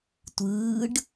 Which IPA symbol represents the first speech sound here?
tʷ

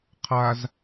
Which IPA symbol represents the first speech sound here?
qʰ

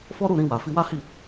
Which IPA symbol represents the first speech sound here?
f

